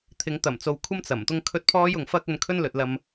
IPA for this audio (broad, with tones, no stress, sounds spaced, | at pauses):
t̪ʰ ɪ˨˧ ŋ t̪ ɐ˨˩ m t͡s o˨ w kʷʰ ɐ˥ m t͡s ɐ˨˩ m t̪ ʊ˥ ŋ kʰ ɵ˥ t̚ pʰ ɔː˥ j ʊ˨ ŋ f ɐ˥ k̚ ɵ˧ n kʰ ɵ˥ n l ɵ˨ t̚ l ɐ˧ m